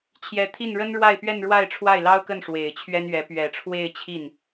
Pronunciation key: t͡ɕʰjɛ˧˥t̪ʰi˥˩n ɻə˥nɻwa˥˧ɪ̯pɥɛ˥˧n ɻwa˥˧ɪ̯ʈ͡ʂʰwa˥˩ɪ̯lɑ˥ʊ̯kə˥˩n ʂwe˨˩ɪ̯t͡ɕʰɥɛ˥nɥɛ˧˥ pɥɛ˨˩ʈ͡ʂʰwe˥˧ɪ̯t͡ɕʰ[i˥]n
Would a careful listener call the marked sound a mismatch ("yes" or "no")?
yes